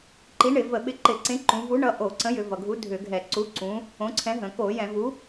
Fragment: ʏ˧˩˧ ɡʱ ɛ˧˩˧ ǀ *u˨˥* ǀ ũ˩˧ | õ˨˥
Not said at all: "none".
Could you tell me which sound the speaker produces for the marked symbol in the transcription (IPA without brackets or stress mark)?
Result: u˨˥